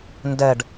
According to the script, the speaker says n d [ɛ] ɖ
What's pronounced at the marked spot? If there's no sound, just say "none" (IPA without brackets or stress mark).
ɛ